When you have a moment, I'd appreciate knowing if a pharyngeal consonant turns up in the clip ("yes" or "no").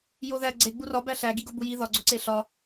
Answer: no